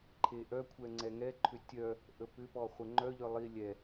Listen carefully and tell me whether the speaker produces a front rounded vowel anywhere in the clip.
yes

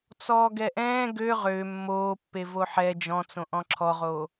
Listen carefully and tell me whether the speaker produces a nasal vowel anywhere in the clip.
yes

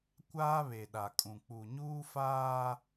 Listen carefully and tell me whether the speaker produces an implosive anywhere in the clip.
yes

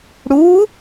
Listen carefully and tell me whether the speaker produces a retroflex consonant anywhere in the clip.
yes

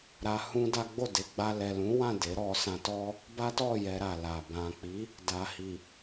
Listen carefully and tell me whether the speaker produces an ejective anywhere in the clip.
no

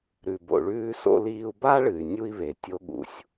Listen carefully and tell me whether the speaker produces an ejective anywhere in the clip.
no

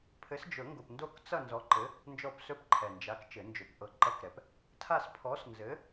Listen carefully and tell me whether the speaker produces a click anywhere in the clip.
yes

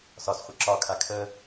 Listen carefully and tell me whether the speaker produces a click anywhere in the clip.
yes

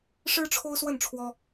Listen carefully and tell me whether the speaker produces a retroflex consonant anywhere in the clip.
yes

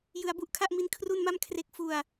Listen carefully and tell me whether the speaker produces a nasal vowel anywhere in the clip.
no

